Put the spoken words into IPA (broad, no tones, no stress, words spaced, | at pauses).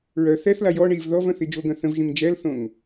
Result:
ɹœ θɛθla jɔ ɳiv ðɔv œ̃θid͡ʒoɡœ̃ θə̃vʒĩŋ d͡ʒɛlθõŋ